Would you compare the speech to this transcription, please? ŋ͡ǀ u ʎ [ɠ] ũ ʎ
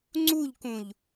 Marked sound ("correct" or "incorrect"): incorrect